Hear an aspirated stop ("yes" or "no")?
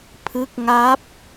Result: yes